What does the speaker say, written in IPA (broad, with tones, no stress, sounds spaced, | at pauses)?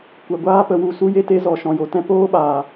kʷ ɛ˨ ɡʷ aː˦ p ə˧ w u˧ s u˦ j e˦ t e˦ z ɔ˨ ʃ ɔ̃˨ j o˨ t ɛ̃˦ p oː˦ ɓ aː˨